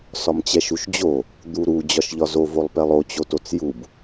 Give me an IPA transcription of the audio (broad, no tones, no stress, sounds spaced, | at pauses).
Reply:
s ɒ m t͡ɕ ɛ ʃ u ʃ d͡ʑ o | d̪ u ɾ u d͡ʑ ɒ ʃ ʎ ɒ z o v o lˠ p ɛ lˠ o t͡ɕ o t o t͡s j u b